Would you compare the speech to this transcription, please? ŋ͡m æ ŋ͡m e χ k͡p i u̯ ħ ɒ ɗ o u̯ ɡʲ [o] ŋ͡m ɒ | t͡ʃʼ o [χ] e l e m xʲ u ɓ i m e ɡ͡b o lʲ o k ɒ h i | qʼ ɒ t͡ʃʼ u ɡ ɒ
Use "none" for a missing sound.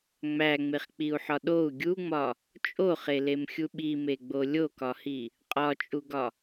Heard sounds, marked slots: u, χ

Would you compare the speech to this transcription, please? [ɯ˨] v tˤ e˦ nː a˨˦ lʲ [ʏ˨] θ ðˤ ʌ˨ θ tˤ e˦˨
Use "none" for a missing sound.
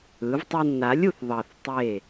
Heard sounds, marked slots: ɯ˨˦, u˨

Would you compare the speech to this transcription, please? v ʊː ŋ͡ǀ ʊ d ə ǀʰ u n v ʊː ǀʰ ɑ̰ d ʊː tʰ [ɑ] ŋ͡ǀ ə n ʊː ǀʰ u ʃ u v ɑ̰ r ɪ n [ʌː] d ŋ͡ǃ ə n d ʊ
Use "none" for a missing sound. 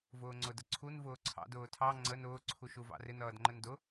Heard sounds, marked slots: ɑ, ʌː

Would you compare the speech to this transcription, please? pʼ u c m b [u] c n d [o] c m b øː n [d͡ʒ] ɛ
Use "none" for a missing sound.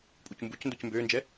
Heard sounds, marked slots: u, o, d͡ʒ

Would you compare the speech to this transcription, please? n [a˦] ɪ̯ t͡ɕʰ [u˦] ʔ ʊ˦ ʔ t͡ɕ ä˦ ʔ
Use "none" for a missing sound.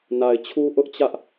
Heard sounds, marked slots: a˨, u˦

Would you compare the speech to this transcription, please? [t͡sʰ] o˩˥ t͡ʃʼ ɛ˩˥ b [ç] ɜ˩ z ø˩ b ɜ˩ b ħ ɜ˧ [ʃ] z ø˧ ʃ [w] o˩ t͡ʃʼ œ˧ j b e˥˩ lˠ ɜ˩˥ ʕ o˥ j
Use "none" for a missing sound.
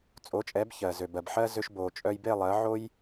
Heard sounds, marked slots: t͡sʼ, ç, none, b

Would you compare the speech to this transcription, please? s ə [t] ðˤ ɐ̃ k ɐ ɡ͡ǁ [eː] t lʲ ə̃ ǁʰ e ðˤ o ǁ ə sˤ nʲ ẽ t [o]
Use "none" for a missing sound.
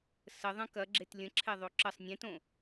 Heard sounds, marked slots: none, e, õ

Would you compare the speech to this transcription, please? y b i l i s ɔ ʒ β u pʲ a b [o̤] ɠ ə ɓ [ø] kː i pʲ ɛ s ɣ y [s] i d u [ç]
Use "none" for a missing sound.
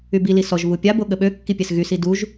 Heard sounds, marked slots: o, ø, s, ʒ

